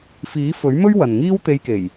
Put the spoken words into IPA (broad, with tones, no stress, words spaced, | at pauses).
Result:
fiː˨˥fɵ˨˥ɥmɵ˥ɥ wɐ˨nŋiː˥w t̪e˧jke˨˩j